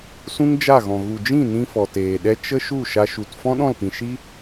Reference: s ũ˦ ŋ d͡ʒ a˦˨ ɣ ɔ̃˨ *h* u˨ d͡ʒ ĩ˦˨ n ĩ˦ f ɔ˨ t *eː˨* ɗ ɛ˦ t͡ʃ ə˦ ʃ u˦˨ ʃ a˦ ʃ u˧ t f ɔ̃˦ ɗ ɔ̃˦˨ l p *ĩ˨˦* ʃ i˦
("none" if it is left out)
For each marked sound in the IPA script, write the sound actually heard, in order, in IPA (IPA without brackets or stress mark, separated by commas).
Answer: ɣ, eː˨, ĩ˨